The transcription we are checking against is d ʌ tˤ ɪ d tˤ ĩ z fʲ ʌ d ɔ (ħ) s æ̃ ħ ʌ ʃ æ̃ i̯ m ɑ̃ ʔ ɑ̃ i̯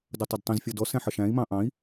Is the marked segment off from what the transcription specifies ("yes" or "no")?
yes